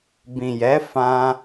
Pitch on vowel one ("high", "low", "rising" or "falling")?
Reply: low